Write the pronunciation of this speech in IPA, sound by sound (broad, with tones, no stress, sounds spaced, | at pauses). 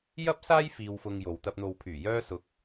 j ɐ˥ p̚ s aː˥ j f iː˧ w f ʊ˧ ŋ j o˨ w t̪ ɐ˧ p̚ n̪ o˨ w pʰ yː˨˩ j œː˧ s ʊ˨˥ k̚